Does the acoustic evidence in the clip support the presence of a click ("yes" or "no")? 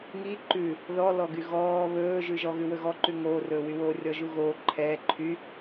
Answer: yes